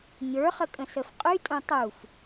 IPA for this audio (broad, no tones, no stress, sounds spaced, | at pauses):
ɲ ə˞ χ ə kʼ ə̃ s ə f qʼ y tʼ ũ tˤ u f